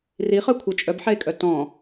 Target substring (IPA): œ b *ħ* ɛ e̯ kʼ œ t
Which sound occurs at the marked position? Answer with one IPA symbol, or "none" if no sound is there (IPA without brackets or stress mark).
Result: ħ